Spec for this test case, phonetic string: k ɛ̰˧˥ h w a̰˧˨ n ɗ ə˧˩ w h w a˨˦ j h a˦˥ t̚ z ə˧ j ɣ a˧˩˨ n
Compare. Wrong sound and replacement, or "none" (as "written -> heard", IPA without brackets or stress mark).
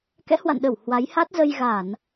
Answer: none